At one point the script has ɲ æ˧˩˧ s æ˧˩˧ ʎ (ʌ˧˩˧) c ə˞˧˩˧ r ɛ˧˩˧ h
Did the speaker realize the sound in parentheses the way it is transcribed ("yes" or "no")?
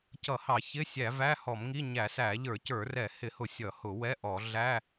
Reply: no